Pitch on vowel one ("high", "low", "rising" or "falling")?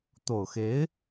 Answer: low